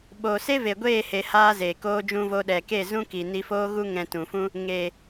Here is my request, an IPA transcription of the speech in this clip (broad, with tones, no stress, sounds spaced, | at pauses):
ɓ oː˨ s e˦ v e˨ ɡʷ eː˦˨ h e˧ h aː˦ z eː˨ k oː˧ d͡ʒ ũ˧ v o˧ ɗ ɛ˨ k e˦˨ z ũ˦ k i˨ n i˧ f oː˦ ɣ u˦ ŋ ɛ̃˧ t ũ˨ f ũ˦ | ŋ e˨